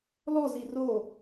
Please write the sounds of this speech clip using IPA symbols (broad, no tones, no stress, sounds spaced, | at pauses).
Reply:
l ɔ z i r o